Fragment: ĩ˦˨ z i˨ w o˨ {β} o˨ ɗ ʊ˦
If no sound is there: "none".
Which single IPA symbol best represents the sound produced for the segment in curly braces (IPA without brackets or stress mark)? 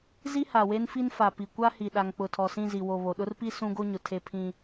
β